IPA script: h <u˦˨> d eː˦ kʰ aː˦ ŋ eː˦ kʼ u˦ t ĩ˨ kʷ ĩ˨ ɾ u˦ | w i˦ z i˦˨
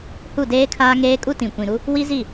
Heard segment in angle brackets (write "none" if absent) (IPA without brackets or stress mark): u˦˨